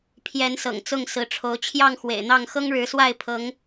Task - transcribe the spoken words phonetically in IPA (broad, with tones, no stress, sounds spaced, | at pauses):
pʰ j ɛ˨˦ n s ɤ̰˨˩ ŋ t͡s ʊ˥˨ ŋ s ɹ̩˨˦ ʈ͡ʂʰ o˨˦ ʊ̯ t͡ɕʰ j ɑ˥˨ ŋ x w ḛ˨˩ ɪ̯ n̪ ɑ˥˨ ŋ x ɤ˦ ŋ ɻ ɻ̩˨˦ s w a˥˨ ɪ̯ pʰ ɤ˨˦ ŋ